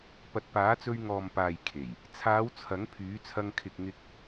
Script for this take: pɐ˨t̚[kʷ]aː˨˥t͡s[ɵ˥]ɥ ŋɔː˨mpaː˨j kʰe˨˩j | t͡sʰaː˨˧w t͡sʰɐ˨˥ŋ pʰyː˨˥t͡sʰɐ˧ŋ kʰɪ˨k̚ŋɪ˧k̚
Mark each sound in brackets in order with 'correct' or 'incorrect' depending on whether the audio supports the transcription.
incorrect, incorrect

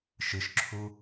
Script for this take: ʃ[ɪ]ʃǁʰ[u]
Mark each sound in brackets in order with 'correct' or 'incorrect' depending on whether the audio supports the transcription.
incorrect, correct

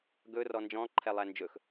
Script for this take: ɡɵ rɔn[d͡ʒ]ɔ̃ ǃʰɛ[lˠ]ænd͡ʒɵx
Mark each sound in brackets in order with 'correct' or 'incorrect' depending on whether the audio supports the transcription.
correct, correct

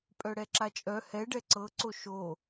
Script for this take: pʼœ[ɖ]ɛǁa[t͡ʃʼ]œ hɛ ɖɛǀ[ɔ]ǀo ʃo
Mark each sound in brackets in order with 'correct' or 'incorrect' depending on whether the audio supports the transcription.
incorrect, correct, incorrect

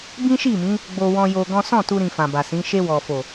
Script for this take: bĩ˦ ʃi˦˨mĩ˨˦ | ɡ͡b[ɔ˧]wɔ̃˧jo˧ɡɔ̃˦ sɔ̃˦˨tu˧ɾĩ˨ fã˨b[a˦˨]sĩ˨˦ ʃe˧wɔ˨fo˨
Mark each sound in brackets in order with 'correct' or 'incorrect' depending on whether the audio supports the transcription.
incorrect, incorrect

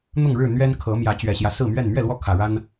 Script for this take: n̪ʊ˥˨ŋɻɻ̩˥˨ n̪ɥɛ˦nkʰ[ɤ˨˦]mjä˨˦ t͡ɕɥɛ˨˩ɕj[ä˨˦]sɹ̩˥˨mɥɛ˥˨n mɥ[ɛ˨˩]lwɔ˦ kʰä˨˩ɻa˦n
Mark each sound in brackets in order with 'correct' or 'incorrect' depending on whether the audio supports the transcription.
correct, incorrect, incorrect

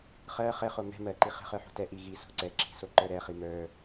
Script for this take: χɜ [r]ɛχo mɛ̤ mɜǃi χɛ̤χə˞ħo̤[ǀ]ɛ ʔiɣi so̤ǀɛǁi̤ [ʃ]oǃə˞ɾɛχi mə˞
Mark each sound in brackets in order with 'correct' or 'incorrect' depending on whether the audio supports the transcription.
incorrect, incorrect, incorrect

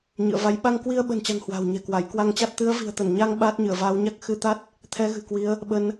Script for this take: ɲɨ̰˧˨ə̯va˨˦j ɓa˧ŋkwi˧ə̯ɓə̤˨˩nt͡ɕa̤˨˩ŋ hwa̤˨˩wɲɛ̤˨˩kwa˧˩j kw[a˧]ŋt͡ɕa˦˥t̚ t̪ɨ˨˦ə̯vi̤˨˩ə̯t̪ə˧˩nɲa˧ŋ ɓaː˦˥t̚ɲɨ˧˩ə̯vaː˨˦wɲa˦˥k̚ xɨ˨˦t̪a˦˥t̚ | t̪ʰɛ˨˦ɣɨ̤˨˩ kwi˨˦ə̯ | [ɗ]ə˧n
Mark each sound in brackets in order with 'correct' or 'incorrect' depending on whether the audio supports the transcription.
correct, incorrect

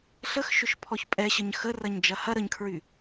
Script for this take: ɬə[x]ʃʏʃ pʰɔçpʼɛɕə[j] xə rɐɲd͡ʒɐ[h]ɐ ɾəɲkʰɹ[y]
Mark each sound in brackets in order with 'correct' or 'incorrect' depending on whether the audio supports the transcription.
correct, incorrect, correct, correct

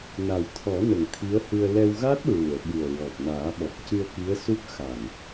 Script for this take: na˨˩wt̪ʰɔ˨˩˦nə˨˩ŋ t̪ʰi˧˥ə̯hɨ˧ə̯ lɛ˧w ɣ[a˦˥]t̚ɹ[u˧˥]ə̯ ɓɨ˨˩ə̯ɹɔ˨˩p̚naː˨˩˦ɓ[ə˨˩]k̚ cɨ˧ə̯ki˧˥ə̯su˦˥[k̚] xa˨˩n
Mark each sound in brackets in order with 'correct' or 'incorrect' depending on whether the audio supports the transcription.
correct, incorrect, incorrect, correct

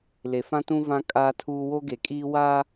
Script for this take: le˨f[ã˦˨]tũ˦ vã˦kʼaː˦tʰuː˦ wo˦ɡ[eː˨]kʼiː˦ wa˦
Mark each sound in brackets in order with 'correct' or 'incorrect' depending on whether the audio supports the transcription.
incorrect, incorrect

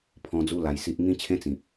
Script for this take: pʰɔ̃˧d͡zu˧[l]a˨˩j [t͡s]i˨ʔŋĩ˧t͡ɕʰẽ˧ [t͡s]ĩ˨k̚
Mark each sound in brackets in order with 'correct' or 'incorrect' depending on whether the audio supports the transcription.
correct, incorrect, correct

